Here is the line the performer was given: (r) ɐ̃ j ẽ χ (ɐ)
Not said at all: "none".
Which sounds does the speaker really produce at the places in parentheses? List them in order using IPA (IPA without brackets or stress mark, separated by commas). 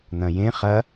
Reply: n̪, ɐ